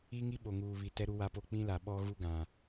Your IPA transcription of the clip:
i˦ ŋ i˦ ɓ o˨ ŋ uː˨ β i˨ t ɛ˦ ɾ u˦ w a˦ p o˦˨ k͡p ĩ˦ l a˨ ɓ ɔ˦ ɣ u˦ ɡ ã˨

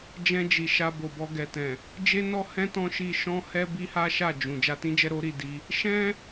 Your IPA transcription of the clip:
d͡ʒ ɛ̃˧ d͡ʒ i˨ ʃ a˧ b o˨ b ɔ˧ ɡ ɛ˨ t ɛ̃˨ | d͡ʒ e˦ n ɔ˦ h ɛ̃˦ t ɔ̃˦ ʃ i˧ ʃ ɔ̃˦ h ɛ˦ b i˦ h a˦ ʃ a˦˨ d͡ʒ ũ˨ d͡ʒ a˧ t ĩ˦ d͡ʒ ɛ˦ ɾ o˦ ɾ i˦˨ d i˧ | ʃ ɛ̃˧

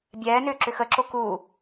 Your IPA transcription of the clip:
bʲ ɛː n ʏː ǁ ʏ x ə ǁ o k u

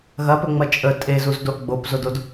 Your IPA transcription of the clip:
ɣ ɐ p ɵ ŋ͡m ɐ t͡ʃʼ ə tʼ e z u z d o ʔ ɡ͡b o p z o d o d

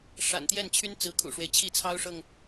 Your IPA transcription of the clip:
ʂ a̰˨˩ n t̪ j ɛ˥˩ n t͡ɕʰ y˥ n t͡s ɹ̩˧˥ kʰ ṵ˨˩ ʂ w e˦ ɪ̯ t͡ɕʰ i˥˩ t͡sʰ ɑ˥ ʊ̯ ʂ ɤ˨ ŋ

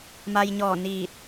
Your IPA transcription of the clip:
m a˧ j ɲ ɔː˧˩ n iː˧˩ t̚

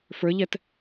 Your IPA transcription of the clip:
f ə˞ ʎ ɛ t

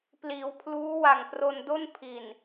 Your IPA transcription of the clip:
p l iː˩˦ w pʰ l uː˦˥ w a˨˩ ŋ p r o˧ n d o˥˩ n pʰ i˨˩ n

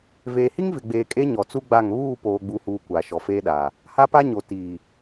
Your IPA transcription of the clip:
v eː˨ h i˦ ŋ v ɪ˨ ɡ͡b eː˨ kʼ e˦ ɲ ɔ˨ t͡s u˦ ɡ͡b a˦˨ ŋ β uː˦˨ p oː˨ ɡ͡b u˨ h uː˨ kʷ aː˨ ʃ ɔ˨ f eː˦ ɗ aː˨ | h a˦ p a˦ ɲ o˨ t iː˨

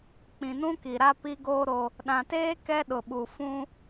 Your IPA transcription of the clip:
k͡p ĩ˨ n ũ˦ k i˨ ɾ a˦ p i˦ ɡ oː˦ ɾ o˦ | ɗ ã˨ t eː˦ k ɛ˦ ɗ ʊ˨ ɓ u˨ f ũ˦

